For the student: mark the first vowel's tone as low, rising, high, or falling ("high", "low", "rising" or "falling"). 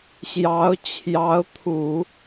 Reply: rising